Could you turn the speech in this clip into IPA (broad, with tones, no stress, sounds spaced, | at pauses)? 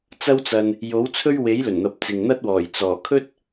t͡s ɐ˥ w t͡s ɐ˧ n | j o˨˥ w t͡sʰ ɵ˥ ɥ w e˨˥ j l ɵ˨˩ n n̪ ɐ˨ p̚ t͡s ɪ˨ ŋ n̪ ɐ˥ t̚ w ɔː˨˩ j t͡s ɔː˨˩ kʰ ɵ˥ t̚